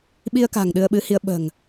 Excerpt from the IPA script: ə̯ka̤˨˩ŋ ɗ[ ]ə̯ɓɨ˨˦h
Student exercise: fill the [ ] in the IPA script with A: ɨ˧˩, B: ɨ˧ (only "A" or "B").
B